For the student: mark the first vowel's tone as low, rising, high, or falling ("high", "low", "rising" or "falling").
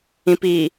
low